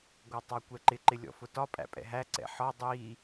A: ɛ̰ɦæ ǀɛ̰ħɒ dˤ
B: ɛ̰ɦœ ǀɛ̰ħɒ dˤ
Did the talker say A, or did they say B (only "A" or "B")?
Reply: A